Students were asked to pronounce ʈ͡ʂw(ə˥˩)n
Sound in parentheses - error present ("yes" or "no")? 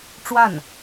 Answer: yes